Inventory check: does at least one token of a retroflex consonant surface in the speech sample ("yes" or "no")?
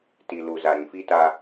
no